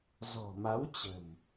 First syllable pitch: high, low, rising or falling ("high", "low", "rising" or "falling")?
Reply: low